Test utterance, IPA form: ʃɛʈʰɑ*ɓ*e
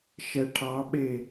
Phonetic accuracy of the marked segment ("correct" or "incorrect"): correct